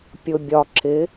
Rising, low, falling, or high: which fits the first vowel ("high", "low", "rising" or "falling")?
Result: low